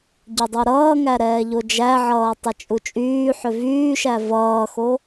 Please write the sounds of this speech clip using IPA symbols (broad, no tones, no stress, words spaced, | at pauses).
ɟʏdˤuɾʌːŋæ ɾɛːʎod͡ʒæʕʌː tˤʌt͡ʃʼut͡ʃʼyːħʏ vyːʃæ vʌːxo